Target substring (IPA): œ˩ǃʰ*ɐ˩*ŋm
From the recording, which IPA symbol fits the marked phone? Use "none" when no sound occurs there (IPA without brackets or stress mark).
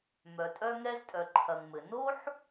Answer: ɐ˩